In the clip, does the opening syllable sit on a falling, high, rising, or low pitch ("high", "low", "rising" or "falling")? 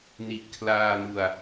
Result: low